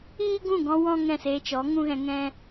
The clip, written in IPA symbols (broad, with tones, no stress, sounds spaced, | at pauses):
iː˦ ɡ ũ˦˨ ɡ ɔ̃˧ w ɔ̃˦ ŋ ɛ̃˦˨ s eː˧ t͡ʃ ɔ˨˦ ŋ ũ˦ ɣ ɛ̃˧ ŋ ɛ̃˦